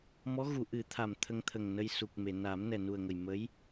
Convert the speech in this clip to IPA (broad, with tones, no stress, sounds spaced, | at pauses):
m ɔ˧˥ ɣ u˨˩˨ ʔ ɨ˨˩˦ t̪ʰ a˨˩ m t̪ʰ ə˧ ŋ t̪ʰ ə˨˩ ŋ n ə˧ j s u˨˩ k̚ m e˨˩˨ n a˨˩˦ m n ɛ˨˩ n u˨˩ ə̯ ŋ ə˨˩ j m ə˧˥ j